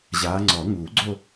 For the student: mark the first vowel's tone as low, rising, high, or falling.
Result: rising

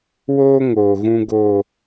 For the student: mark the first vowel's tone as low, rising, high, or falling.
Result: high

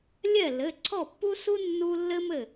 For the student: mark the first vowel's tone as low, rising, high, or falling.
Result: falling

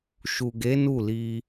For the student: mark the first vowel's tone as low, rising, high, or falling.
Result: low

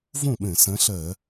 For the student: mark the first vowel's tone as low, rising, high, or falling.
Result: falling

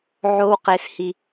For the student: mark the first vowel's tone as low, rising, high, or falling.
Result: high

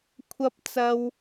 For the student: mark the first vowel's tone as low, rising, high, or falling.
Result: high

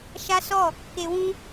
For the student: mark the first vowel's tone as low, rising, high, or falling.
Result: high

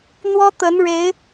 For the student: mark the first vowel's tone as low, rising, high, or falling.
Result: high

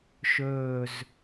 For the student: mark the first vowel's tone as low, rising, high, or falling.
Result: low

